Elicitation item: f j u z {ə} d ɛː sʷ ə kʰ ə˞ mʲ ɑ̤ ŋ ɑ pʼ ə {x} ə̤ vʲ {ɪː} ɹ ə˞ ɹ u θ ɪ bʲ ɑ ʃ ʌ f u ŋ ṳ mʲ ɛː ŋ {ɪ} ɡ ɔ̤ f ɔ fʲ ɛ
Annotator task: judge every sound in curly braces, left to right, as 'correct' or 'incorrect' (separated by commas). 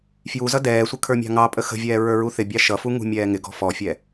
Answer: incorrect, correct, incorrect, correct